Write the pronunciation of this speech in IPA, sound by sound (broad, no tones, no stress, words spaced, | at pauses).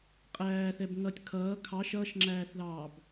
qʼæːθɛb ŋʌtʲ kʰʌː kʰɑ ʃʌːʃŋ͡ǁæːθðɑːb